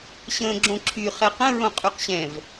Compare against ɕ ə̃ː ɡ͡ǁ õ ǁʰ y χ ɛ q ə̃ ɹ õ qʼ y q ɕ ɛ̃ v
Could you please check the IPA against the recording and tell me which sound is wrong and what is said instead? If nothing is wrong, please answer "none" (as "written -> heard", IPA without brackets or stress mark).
none